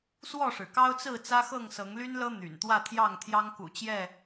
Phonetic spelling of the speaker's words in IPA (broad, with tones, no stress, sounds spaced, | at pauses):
s w ɔ˥˨ ʂ ɻ̩˩ k ɑ˦ ʊ̯ t͡s ɹ̩˥˨ t͡s ä˦ x ɤ˥˨ ŋ s ɤ˨˦ ŋ l y˦ n l ɤ˦ n̪ y̰˨˩ n t̪ w ä˥˨ t̪ʰ j ɑ˥˨ ŋ t̪ʰ j ɑ˦ ŋ k ṵ˨˩ t͡ɕ j ɛ˥˨